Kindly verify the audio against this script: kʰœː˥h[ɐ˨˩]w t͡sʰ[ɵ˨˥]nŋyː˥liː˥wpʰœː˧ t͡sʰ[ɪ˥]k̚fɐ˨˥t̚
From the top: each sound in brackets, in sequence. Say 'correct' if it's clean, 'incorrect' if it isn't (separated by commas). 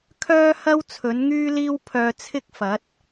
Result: incorrect, correct, correct